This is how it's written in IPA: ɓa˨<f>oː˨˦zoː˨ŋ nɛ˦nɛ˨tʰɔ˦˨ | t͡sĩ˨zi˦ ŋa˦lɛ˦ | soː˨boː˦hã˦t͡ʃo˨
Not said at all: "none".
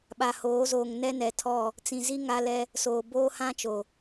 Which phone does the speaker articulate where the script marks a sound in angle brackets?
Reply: h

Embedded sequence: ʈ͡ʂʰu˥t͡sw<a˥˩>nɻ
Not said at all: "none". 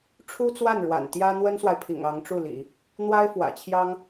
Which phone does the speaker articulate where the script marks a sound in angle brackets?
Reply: a˥˩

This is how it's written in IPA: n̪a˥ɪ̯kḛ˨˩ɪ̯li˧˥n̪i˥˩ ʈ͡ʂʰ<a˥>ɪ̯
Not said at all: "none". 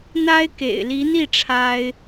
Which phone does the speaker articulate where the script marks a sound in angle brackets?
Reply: a˥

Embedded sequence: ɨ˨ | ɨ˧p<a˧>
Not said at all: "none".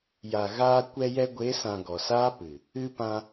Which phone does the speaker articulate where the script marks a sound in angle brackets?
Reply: ã˧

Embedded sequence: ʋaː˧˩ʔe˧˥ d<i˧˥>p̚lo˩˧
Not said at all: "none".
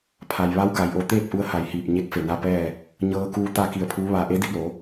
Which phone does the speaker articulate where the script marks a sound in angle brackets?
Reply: i˧˥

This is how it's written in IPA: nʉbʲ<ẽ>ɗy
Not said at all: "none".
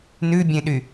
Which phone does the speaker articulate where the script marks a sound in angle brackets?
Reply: ẽ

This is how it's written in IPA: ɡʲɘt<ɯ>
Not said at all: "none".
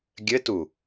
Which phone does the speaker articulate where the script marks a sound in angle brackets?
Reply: u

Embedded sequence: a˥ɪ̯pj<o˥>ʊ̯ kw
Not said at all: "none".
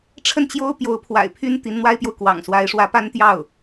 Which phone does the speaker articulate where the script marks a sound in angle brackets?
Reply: o˨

